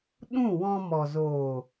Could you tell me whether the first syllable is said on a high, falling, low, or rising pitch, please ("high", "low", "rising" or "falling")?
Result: falling